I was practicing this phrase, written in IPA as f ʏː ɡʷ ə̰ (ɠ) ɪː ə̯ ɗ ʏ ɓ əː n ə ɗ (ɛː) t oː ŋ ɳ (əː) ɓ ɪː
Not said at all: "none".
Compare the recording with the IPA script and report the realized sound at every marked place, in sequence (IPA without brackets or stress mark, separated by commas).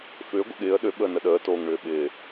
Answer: ɠ, əː, ʏː